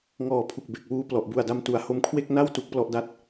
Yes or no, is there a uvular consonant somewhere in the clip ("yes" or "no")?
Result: no